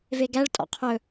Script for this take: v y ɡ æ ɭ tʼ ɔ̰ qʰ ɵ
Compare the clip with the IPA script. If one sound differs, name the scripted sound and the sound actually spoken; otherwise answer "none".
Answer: y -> e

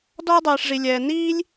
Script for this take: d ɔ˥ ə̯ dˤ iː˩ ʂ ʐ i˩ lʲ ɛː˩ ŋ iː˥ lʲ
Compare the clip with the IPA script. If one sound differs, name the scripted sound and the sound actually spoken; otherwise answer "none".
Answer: ŋ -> n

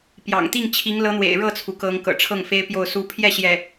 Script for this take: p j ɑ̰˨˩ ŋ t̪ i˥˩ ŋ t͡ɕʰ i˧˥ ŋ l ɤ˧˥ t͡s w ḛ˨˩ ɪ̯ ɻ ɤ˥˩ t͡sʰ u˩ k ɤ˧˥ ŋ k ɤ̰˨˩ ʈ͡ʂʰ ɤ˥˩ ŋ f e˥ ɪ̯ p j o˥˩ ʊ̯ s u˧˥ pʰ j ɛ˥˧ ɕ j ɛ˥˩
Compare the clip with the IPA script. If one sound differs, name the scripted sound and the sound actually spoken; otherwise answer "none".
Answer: t͡s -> n̪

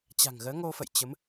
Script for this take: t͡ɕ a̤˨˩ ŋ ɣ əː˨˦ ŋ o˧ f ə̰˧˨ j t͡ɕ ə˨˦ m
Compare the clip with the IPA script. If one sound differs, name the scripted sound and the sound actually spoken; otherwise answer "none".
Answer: none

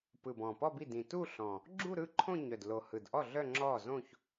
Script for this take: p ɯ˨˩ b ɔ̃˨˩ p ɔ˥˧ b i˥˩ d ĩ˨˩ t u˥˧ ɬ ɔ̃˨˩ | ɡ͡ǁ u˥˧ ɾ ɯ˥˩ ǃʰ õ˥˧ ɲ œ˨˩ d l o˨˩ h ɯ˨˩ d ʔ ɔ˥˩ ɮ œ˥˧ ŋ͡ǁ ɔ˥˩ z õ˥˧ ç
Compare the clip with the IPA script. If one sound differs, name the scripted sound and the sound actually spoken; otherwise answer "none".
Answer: none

